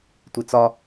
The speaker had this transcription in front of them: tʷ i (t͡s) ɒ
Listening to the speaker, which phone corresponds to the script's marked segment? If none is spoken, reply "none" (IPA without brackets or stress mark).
t͡s